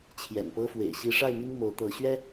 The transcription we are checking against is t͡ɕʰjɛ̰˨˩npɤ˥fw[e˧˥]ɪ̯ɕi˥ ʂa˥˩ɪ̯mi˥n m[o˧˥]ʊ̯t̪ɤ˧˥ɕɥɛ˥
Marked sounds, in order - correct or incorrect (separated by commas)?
incorrect, correct